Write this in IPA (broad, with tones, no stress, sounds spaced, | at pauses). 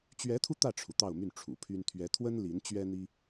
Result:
t͡ɕ ɥ ɛ˧˥ t̪ʰ u˧ t̪ ä˥˩ ʈ͡ʂʰ u˩ t̪ ɑ˥˧ ʊ̯ m y˥˩ n ʈ͡ʂʰ ṵ˨˩ pʰ y˥ n t̪ʰ ɥ ɛ˧˥ t̪ʰ w ə˥ n l i˧˥ n t͡ɕ ɥ ɛ˥ n̪ i˥